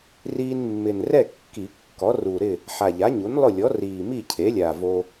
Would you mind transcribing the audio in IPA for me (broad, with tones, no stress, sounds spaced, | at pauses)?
r iː˧ n mː ɪ˨˩ n r ɛ˥˨ kː i˨˩˦ kː ɔ˩˥ r u˨˩ ɾ ɪ˥˨ | ħ a˨˩ ʎ a˩˥ ɲ u˩˥ n lˠ ʊ˥˨ lʲ ɔ˩˥ r iː˨˩ m i˥˨ cʰ e˩˥ lʲ a˨˩ v o˧